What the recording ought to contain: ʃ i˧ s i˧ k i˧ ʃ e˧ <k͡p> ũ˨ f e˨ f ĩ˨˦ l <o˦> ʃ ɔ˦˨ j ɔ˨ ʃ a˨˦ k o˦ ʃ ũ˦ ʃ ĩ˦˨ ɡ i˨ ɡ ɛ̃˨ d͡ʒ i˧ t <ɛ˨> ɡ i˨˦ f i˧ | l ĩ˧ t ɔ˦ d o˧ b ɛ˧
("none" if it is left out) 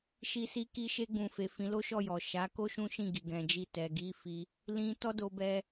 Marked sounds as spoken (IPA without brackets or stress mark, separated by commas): ɡ͡b, o˦, ɛ˨